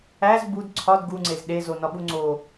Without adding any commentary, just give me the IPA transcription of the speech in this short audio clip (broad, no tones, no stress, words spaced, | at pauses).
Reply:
æz bud ǀʰɒd ɡuŋ͡ǀez ɗezonɒɓu ŋ͡ǀo